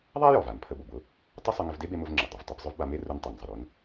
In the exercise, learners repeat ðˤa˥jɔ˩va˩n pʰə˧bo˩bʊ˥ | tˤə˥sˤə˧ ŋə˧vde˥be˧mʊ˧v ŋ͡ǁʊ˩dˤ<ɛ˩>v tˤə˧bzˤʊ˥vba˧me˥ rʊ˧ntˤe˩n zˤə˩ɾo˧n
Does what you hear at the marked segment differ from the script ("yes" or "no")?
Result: yes